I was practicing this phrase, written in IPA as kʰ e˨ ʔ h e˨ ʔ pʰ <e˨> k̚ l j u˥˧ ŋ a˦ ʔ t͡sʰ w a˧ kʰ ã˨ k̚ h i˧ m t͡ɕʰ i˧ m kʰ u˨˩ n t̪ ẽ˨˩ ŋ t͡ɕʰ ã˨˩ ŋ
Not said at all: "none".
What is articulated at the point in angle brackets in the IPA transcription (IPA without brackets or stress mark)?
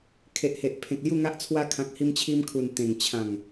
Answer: ẽ˨